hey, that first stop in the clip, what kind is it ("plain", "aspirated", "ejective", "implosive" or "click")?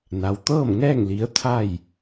plain